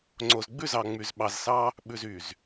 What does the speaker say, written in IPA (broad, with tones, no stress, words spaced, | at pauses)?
ŋ͡ǀo˨zɡ͡bʉ˦˨zɑ˨ŋ͡my˨z ɓɑ˨zsɑ˦ | ɓʉ˨zy˨z